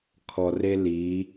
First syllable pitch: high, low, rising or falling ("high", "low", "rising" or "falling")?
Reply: low